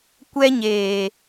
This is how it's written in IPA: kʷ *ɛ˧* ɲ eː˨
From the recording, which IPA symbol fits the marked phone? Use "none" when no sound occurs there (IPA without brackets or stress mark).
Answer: ɛ˧